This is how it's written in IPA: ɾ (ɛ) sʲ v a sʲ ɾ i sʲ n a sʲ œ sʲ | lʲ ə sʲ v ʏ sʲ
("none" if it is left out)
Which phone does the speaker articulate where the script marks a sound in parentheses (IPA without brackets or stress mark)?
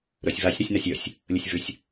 œ